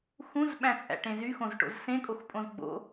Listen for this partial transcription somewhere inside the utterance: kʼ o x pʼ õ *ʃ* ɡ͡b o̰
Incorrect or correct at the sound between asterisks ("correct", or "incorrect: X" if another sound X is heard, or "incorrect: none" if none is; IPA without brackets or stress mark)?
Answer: incorrect: z